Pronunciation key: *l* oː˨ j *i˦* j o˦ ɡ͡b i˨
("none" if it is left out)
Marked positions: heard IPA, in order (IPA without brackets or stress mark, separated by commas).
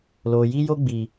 l, i˦